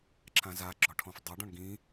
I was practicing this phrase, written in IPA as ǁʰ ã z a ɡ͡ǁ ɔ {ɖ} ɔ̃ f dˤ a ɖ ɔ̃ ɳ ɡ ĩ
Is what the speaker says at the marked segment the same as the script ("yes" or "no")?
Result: no